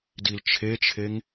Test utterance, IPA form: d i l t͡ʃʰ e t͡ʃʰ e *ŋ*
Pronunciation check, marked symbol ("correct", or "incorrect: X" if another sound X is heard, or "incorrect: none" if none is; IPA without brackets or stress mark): correct